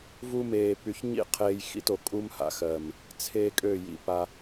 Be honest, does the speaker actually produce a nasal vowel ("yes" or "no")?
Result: no